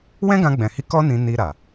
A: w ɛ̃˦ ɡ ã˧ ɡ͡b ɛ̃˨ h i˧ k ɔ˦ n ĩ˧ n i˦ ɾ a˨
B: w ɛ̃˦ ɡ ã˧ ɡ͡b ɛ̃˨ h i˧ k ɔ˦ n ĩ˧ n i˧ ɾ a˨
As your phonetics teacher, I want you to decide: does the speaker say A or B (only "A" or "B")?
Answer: B